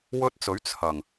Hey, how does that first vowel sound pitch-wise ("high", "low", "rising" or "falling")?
high